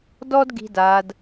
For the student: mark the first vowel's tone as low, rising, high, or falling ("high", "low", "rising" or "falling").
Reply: high